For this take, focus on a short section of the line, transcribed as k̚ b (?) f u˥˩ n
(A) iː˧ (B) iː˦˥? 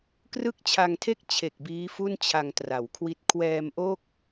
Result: B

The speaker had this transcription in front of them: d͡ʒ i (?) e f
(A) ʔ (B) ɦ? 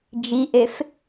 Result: A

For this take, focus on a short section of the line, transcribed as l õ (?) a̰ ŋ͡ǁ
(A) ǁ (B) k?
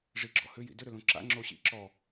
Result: A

